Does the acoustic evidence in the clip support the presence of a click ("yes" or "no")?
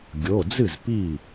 no